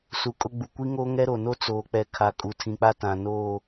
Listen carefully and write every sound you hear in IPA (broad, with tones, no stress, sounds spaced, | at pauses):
s u˨ kʼ ʊ˦ ɡ͡b u˨ kʷ i˦ ŋ oː˦ ŋ ɛ˦ ɾ o˨ n o˦ t͡s oː˨ k͡p ɛ˨ kʰ a˨ kʼ u˨ tʰ ĩ˨ k͡p a˦ t ã˨ n oː˦˨